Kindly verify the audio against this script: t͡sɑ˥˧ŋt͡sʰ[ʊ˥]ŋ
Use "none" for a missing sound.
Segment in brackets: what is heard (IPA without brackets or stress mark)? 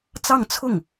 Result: ʊ˥˩